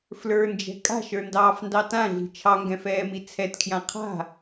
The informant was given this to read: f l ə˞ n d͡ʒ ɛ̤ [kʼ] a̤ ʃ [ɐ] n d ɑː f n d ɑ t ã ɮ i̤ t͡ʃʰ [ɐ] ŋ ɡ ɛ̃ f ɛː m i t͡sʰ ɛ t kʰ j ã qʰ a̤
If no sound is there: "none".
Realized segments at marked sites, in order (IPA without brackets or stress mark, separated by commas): kʼ, ə˞, ɑ